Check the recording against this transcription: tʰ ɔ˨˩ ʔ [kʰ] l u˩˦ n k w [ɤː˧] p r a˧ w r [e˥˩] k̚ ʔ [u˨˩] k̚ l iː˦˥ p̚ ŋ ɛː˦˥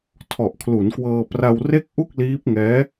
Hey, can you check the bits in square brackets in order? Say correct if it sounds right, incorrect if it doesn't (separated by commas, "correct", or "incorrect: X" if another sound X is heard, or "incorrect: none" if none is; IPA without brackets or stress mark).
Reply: correct, correct, correct, incorrect: u˥˩